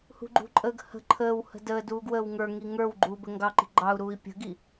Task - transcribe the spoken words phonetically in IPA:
h ṳ ɡ͡ǃ ṳ ǃʼ əː ɡ h ə̤ ǃʰ əː w h ə̤ d əː d uː ɡ w əː w ŋ ə˞ ŋ i ŋ ə˞ w ɡ͡ǃ uː b ə ŋ ɡ ɑ ǃ i̤ ɡ͡ǃ ɑ u̯ ɾ uː i̯ pʲ ə̤ ɡ i

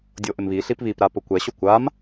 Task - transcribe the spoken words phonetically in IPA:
dʲ o ʔ ɪ m β i ɬ i p β i p ɾ a p ʊ kʷ ɛ ɕ o kʷ a m

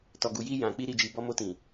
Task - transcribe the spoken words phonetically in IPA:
t ɔ˨ ɡ u˨ j i˧ j ã˨ k͡p i˧ ɾ i˨ d͡ʒ i˨ b ɔ˧ m o˧ t ĩ˨

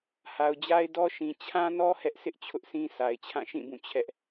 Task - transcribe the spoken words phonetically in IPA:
h a˨ ʊ̯ d͡ʑ a˦ ɪ̯ d ɔ˦ ʃ ĩ˨ t͡ɕʰ ã˦ n ɔ˦ h ɛ˦ ʔ s ɪ˦ ʔ t͡ɕʰ ʊ˦ ʔ sʰ ĩ˦ s a˨ ɪ̯ t͡ɕʰ ã˦˨ ʃ ĩ˦˨ b ũ˦˨ t͡ɕʰ ɛ˦ ʔ

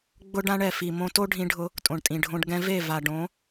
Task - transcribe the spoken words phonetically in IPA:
ɡ͡b ʊ˦ ɖ ã˦ ɳ ɛ˨ f i˨ m õ˧ t o˦ ɖʱ ĩ˧ ɖʱ ʊ˧ | tʼ õ˨ ɳ tʼ ĩ˨ ɖʱ õ˧ ɖ ɡ ɛ̃˧ v e˦˨ v a˨ ɖ õ˨˦

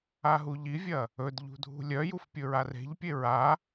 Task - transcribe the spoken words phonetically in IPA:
a ɦ u ʎ i vʲ ɐ | ɵ d ʎ ṳ dʱ ṳ lʲ œ j u f pʲ ɵ ɹ a r e̤ ʎ pʲ e ɹ a

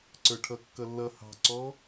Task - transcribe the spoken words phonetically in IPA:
ǀ ə˞ ʈʰ ʌ kː ʌ lː ʌ h ɑ̤ ǀ ɔ

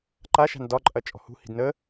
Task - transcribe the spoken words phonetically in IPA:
ǃ a ʃ a̤ n d ɒ ǃʼ ɐ t͡ʃʼ ɔ̤ h ṳ h i̤ d n ə

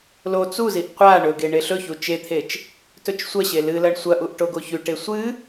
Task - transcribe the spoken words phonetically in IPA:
l o t͡s u z i ʔ qʷ a ɳ ɵ ɡ e ɳ e ɬ ɵ ç u t͡ʃ e t̪ʰ e t͡ʃ | t ɵ t͡ʃ sʷ ɐ ɕ e l ɨ l ɐ ɳ sʷ ɐ ʔ u ʔ ʈ o ɡ o ç ʉ ʈ e sʷ ɨ

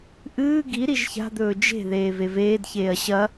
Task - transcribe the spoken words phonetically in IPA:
ʔ ɨː ɡ i ɾ i ʒ ç a̤ d̪ ɵː d͡ʒ e̤ ð eː v e v eː d ç eː ɐ̯ ɕ ɐ

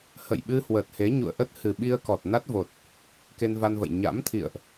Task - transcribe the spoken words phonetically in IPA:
h ə̰˧˨ j ɓ ɨ˧ h w ə˨˩ t̚ h e˨˦ ɲ ṵ˧˨ ə̯ ʔ ə˦˥ t̚ h ɨ˨˩ ɓ i˧ ə̯ k ɔ˨˩ t̚ n a˦˥ t̚ v o˨˩ t̚ | k e˧ n v a˧ n v ə̰˧˨ j ɲ a̰˧˥ m t̪ʰ ḭ˧˨ ə̯ ʔ

